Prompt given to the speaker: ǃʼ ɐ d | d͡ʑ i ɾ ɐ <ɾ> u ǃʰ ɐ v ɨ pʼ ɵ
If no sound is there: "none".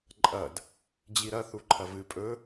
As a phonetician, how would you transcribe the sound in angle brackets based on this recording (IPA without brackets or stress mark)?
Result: θ